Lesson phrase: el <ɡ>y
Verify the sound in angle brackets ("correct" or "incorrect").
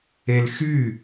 incorrect